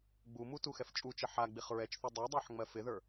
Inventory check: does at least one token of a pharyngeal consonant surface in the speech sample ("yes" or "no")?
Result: yes